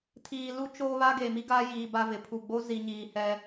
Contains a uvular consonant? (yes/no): no